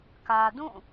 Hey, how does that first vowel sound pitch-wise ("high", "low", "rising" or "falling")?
low